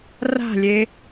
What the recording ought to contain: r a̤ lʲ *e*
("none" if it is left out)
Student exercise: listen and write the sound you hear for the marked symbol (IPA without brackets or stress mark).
e